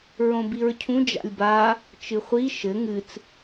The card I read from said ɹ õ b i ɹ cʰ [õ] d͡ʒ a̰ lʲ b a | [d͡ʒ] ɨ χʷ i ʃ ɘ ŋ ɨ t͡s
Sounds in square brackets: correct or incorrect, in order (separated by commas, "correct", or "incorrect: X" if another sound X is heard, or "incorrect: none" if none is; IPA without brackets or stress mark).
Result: incorrect: ũ, incorrect: t͡ʃ